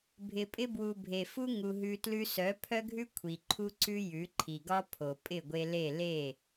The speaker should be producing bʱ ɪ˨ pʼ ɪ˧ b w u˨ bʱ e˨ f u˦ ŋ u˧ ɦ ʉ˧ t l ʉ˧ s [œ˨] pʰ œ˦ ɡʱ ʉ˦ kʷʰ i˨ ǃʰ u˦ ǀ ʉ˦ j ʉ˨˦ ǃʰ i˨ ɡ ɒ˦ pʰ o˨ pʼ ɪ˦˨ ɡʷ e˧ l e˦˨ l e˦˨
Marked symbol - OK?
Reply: no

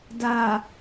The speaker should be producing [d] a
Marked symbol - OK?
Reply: yes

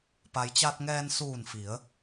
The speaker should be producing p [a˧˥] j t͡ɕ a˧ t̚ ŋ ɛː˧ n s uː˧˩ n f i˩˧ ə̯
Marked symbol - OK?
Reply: no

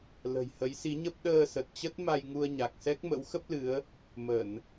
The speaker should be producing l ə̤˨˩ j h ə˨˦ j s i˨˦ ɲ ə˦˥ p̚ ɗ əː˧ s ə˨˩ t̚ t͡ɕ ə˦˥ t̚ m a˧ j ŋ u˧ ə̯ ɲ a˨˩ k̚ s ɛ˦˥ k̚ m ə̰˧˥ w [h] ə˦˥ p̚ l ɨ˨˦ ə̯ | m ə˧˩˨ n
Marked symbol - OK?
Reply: no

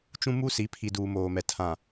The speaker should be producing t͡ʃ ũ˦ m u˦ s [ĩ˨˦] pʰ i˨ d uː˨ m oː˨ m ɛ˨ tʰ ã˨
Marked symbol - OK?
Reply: no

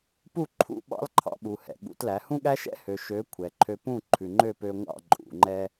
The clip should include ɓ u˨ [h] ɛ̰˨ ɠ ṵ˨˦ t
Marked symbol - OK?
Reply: yes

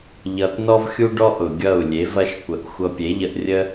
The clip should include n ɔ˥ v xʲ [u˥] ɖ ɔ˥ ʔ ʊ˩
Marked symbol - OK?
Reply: yes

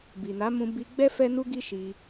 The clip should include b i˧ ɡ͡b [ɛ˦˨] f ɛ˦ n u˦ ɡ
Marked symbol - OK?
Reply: no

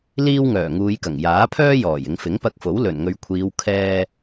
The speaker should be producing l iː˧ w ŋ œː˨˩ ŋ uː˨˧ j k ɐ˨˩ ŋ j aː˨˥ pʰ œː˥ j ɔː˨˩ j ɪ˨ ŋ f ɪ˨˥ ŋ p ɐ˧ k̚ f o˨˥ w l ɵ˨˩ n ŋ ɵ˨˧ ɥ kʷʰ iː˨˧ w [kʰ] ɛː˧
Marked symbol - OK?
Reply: yes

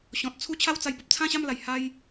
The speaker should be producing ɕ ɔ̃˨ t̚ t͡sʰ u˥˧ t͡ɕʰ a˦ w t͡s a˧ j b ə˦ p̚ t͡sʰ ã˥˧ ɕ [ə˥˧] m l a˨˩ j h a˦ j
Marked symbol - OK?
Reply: no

